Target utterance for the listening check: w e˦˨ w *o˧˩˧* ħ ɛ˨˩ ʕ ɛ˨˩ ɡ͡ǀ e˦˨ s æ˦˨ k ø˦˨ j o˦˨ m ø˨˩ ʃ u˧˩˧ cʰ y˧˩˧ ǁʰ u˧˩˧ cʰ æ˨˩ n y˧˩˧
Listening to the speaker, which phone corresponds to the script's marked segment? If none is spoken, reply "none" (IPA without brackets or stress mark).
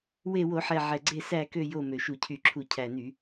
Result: o˧˩˧